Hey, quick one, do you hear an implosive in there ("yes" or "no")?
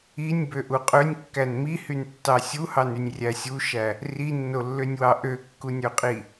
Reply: no